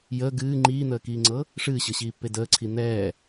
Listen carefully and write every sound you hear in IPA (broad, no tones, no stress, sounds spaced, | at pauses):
j əː ɡ ɨː ŋ͡ǃ iː n̪ əː k iː ŋ͡ǀ ɤ | ʂ ɨː ɕ ɤ ɕ iː pː e d əː ǀʰ i n̪ ɛː